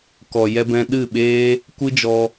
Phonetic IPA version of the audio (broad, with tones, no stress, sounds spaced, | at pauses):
k ɔ˨ j ɛ˧ b ɛ̃˧ ɗ ɨ˦˨ ɓ eː˦ | kʷ ɨ˦ d͡ʒ ɔ˧